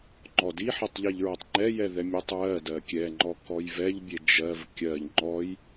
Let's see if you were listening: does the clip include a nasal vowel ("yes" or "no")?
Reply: no